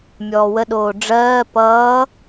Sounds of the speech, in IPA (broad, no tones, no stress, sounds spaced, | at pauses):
mʲ ɔː w ə ɗ oː ɖ͡ʐ ɜː p ʌː